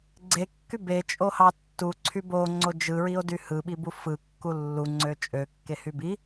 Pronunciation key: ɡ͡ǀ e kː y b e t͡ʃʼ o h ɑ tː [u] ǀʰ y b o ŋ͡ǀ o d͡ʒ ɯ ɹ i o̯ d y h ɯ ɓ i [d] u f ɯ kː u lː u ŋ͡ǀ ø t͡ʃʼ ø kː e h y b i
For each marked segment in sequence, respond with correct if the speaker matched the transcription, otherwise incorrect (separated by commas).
correct, incorrect